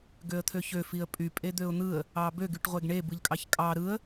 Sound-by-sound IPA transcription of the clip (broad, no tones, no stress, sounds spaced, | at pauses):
ɡ ø ə̯ t̪ʰ ø ç ø f i ə̯ pʼ y pʼ e d̪ ø ʊ̯ n̪ ɯ ə̯ | ɑ b ø ɡ y ʈ ʁʷ e ɡ ɳ e b ɯ ʎ kʼ ɑ ç kʼ ɑ ɾ ɯ ə̯